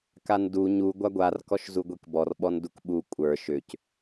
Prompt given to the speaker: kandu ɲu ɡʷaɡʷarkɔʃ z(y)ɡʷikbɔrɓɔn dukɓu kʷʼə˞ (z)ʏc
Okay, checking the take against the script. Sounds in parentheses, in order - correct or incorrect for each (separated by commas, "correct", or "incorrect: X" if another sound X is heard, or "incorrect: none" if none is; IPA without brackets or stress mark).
incorrect: u, incorrect: ʃ